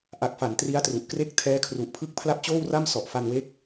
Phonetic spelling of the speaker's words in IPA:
ʔ a˨˩ k̚ f a˩˦ n t r i˦˥ a̯ t r u˨˩ ʔ k r e˥˩ k̚ tʰ ɛː˦˥ kʰ r u˨˩ ʔ pʰ ɯ˥˩ k̚ pʰ l a˥˩ p̚ t͡ɕ oː˥˩ w r a˥˩ m s ɔ˨˩ ʔ f a˧ n w e˦˥ k̚

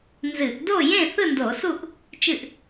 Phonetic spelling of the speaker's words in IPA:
n z ɨ˧˩˧ ʔ d o˥˨ j ẽ˥˨ θ ɯ˥˨ n d o˧˩˧ s u˥˨ ʔ | t͡ʃ ɨ˥˨ ʔ

